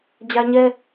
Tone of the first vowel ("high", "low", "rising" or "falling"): high